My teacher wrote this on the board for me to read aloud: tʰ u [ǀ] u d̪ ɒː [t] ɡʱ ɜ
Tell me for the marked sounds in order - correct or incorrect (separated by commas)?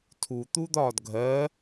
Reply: incorrect, incorrect